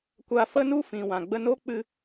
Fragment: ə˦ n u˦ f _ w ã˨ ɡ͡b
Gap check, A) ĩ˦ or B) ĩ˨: B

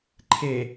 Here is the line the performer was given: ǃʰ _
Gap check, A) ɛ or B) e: B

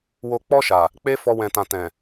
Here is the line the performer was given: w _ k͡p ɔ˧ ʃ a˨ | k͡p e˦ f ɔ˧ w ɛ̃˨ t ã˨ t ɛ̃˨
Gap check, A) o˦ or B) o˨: B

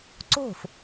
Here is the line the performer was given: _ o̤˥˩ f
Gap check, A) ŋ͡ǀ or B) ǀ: B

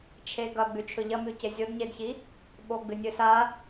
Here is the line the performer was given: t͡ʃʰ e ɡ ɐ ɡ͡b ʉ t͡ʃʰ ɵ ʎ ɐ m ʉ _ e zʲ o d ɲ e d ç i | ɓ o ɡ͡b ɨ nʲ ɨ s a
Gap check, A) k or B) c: B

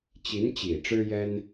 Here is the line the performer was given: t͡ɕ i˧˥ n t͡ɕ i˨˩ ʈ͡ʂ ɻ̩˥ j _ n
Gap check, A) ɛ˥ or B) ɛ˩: A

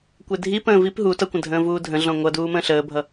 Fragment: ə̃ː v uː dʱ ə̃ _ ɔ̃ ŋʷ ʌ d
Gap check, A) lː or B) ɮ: B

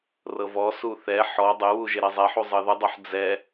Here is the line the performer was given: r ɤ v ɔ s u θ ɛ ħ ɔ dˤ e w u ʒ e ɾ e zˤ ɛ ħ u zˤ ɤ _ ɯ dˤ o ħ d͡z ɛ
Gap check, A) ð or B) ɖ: A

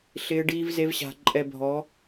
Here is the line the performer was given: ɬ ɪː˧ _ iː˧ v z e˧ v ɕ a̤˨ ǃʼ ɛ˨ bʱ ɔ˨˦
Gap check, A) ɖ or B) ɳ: A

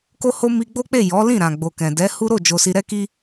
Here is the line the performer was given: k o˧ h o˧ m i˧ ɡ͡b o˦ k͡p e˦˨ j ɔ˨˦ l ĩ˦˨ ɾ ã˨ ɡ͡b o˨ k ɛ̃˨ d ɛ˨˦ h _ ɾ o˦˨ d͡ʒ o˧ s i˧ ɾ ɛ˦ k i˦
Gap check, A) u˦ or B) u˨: A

